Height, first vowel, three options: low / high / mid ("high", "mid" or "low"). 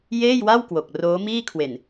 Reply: mid